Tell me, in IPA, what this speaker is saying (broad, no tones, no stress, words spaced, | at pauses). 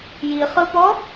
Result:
jiχɯpɔ